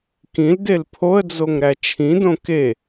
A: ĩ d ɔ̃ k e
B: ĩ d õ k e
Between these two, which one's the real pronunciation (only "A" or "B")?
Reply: B